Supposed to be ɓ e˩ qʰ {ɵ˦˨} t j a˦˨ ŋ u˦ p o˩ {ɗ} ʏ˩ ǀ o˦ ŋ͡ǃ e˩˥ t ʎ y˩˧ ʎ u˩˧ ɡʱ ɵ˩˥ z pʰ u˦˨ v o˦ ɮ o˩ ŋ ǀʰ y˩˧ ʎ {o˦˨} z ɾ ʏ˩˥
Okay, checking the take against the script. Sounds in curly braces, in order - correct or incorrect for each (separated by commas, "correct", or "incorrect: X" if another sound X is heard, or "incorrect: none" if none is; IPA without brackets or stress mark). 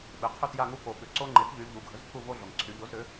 correct, incorrect: ɓ, incorrect: o˩˥